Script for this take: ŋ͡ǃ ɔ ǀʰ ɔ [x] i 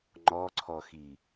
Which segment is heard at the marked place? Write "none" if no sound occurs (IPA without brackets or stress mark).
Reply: x